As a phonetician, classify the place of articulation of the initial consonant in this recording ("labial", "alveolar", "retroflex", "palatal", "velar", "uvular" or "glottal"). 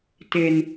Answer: alveolar